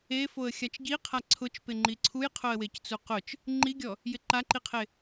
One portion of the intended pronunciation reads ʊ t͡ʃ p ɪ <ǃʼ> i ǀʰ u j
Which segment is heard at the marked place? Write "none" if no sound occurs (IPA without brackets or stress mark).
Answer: ŋ͡ǃ